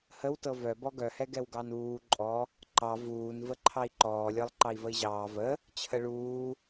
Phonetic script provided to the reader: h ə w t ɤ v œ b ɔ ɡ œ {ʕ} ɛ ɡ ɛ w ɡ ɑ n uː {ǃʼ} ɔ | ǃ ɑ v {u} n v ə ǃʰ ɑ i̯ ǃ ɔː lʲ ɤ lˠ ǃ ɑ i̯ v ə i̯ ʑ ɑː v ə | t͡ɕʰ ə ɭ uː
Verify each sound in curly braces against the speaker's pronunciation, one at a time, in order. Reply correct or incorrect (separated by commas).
incorrect, correct, incorrect